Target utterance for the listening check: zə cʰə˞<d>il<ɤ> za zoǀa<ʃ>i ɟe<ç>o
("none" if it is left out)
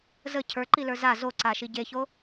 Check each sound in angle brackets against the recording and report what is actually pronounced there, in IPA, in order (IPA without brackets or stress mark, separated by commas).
ǃ, ə˞, ʃ, ç